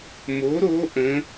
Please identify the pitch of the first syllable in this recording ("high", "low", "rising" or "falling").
rising